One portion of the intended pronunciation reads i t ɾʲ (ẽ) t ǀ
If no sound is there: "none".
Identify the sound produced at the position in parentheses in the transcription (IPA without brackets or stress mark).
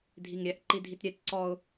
e